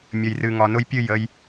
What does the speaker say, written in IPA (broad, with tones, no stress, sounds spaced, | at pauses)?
mʲ ə˨ j r ɨ˨ ŋ ɒ˨ n ʊ˦ j pʲ ɨ˦˨ j ə˧ j